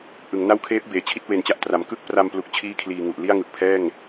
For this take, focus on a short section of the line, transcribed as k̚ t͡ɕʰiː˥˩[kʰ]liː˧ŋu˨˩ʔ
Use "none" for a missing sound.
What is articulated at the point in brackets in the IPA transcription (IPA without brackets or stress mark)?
kʰ